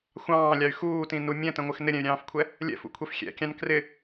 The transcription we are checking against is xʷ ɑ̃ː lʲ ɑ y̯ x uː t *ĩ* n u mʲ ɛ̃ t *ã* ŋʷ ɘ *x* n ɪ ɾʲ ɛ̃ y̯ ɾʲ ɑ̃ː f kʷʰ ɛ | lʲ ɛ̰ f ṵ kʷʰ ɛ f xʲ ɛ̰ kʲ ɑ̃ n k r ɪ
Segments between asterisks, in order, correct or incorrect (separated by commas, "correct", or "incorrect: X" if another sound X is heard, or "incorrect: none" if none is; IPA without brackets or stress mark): correct, incorrect: ə̃, correct